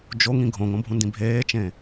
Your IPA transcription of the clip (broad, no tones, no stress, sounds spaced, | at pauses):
d͡ʒ o ŋ ĩ ɡʱ õ ŋ õ bʱ ũ n d ĩ bʱ eː t͡ʃ ẽ